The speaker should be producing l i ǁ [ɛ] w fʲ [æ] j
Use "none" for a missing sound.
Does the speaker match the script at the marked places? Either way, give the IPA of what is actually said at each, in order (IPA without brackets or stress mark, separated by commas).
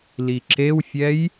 e, ɛ